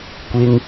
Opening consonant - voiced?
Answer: no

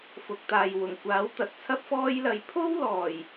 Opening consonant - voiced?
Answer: no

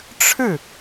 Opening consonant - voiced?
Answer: no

